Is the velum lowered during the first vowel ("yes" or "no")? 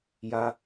no